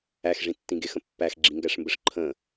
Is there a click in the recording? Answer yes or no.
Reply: yes